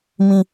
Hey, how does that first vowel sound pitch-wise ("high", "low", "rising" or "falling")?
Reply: high